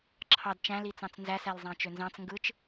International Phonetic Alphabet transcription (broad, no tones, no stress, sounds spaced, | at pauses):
ǁʰ ɑ d t͡ʃ æ̃ l i t͡s ɑ̃ t͡s n z æ s æ l zˤ æ̃ t͡ʃ ø n z ɑ̃ t͡s ŋ ɡ ɯ t͡ʃ